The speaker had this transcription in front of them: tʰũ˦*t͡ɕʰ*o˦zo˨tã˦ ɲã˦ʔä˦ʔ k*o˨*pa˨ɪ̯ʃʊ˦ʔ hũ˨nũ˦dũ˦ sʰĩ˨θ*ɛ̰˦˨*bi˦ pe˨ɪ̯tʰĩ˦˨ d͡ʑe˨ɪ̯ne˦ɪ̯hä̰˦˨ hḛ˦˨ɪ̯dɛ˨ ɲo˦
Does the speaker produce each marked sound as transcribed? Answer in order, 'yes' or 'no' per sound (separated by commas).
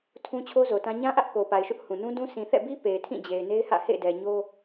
yes, yes, yes